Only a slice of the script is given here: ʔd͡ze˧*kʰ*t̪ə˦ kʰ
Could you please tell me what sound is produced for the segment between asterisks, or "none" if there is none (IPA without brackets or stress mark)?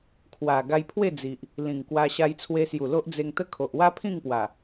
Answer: ŋ